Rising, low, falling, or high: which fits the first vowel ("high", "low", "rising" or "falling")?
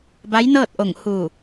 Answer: rising